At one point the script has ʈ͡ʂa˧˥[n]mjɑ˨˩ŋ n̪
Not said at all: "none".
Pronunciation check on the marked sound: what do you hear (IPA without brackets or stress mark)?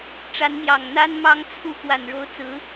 n